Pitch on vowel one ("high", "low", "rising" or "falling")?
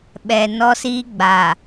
low